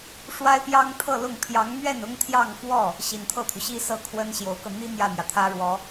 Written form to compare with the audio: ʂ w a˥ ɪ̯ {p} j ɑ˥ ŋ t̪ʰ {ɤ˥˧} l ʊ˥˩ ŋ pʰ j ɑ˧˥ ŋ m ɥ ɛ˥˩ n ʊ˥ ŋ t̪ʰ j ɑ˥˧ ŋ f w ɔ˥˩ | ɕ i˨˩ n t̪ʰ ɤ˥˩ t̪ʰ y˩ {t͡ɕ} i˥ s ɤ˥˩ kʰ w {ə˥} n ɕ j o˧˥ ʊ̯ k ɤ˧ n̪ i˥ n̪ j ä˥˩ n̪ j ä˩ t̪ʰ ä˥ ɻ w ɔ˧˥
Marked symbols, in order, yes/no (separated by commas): yes, yes, no, yes